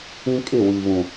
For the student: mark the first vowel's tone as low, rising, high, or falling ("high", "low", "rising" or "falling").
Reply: high